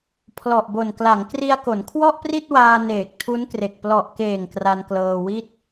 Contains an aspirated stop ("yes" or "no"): yes